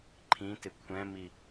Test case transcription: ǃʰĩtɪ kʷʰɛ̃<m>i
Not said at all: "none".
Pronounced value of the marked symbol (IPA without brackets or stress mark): m